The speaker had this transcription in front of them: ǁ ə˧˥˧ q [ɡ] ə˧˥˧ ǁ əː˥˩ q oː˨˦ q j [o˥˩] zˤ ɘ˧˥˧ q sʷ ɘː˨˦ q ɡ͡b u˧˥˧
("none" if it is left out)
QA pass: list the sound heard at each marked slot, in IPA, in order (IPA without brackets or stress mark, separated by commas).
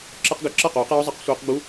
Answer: ɡ, o˧˥˧